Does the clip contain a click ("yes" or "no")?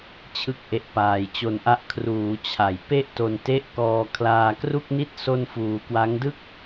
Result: no